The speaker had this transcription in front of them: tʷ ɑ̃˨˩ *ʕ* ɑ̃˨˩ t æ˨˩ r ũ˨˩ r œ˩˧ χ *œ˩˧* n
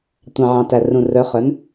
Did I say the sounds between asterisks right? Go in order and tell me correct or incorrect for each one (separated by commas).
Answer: correct, correct